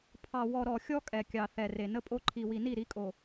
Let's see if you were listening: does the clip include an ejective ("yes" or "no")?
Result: yes